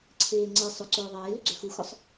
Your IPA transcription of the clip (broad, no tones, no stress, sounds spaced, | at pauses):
ǀʰ eː ŋ͡ǀ e sˤ ʏ ǀ ʊː ðˤ eː l ʏ ɡ͡ǀ ø x u x ʊ sˤ